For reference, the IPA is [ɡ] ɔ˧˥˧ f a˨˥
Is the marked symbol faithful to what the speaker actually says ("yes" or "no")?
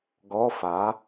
yes